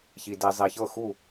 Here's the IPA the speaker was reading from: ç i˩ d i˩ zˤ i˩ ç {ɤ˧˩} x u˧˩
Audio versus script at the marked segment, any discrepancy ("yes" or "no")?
no